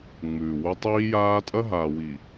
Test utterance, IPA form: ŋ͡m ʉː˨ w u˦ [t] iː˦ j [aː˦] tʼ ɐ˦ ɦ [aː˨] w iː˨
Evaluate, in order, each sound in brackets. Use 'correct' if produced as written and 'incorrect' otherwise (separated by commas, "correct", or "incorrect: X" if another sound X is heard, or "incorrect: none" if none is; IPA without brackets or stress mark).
incorrect: tˤ, correct, correct